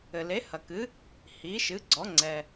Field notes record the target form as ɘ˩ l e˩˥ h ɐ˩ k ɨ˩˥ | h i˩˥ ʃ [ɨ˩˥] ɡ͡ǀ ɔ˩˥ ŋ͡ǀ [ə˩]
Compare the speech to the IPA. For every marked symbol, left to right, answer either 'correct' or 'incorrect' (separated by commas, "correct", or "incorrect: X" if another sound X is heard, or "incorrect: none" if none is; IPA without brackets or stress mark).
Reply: correct, incorrect: ɛ˩